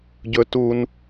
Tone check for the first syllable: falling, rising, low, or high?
high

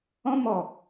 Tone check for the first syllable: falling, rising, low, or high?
high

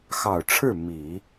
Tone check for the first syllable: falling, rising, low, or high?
low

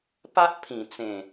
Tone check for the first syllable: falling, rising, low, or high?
high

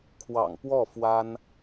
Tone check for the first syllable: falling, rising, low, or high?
low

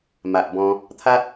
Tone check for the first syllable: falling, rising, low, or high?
low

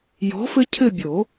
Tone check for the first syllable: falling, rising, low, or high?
rising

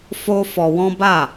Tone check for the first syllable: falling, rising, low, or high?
high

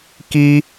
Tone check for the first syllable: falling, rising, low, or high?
high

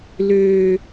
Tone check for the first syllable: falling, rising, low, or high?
low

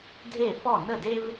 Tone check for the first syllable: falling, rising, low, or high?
falling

